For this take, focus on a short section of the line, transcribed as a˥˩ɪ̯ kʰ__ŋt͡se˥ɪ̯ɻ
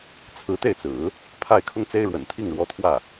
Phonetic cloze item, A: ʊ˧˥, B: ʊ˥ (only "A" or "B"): B